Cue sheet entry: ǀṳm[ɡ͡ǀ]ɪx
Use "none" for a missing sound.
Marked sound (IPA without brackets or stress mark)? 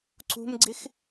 ɡ͡ǀ